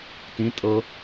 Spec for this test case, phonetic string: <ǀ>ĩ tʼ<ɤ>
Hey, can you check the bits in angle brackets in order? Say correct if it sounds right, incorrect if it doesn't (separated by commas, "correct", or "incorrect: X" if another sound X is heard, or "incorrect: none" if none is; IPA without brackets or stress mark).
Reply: incorrect: t, correct